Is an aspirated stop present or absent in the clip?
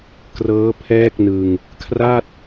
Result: present